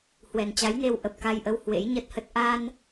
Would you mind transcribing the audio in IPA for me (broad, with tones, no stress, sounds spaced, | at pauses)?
h w ɛ˨˩ n t͡ɕ a˨˦ j n e˧ w ʔ ə˨˩ p̚ k a˧ j ʔ ə˧ w h w ḛ˧˥ j ɲ ə˦˥ t̚ h ə˦˥ t̚ ʔ a˧ n